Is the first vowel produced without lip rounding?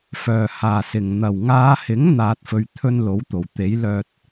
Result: no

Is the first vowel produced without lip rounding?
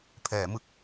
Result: yes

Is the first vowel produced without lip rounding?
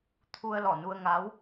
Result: no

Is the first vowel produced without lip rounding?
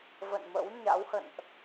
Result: yes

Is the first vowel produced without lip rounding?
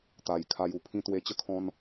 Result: yes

